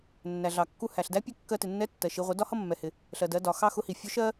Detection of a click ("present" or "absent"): absent